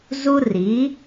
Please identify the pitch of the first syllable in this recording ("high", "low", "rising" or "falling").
high